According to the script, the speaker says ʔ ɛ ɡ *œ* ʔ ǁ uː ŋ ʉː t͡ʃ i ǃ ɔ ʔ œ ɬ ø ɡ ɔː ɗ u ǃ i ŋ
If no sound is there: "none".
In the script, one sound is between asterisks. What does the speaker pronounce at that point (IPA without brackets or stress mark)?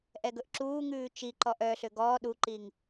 ɵ